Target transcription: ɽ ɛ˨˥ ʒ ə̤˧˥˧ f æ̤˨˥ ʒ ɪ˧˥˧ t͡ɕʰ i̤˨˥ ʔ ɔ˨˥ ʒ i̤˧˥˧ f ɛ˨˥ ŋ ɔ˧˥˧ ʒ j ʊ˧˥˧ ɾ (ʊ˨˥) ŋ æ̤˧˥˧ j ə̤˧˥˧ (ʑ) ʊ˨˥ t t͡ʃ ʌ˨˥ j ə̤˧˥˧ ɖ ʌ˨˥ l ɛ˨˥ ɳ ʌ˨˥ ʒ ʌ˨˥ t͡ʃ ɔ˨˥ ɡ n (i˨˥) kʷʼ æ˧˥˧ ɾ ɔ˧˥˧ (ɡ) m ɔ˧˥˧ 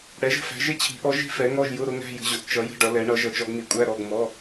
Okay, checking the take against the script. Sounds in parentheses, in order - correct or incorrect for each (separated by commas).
correct, correct, correct, correct